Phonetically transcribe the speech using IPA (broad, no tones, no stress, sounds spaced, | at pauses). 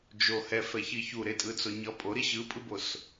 d͡ʒ o h ɛ f ɛ ç i ç u ɾ e tʼ ɯ t͡s o ɲ ʌ pʼ o ɾ i ɕ ɯ pʼ ɯ b o s